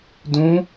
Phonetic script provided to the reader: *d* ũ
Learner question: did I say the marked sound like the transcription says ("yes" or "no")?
yes